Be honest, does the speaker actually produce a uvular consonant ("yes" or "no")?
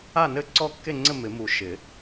no